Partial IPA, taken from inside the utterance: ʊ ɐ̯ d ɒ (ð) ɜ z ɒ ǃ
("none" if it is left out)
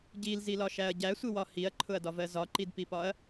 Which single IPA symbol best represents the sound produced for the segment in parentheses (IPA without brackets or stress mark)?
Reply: v